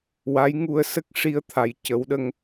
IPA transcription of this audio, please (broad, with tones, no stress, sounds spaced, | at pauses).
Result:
w a˧˥ j ŋ u˧ ə̯ s ə˦˥ k̚ ʂ i˧ ə̯ t̪ʰ a˨˩ j c ə˨˩˦ w ɗ ə˧ ŋ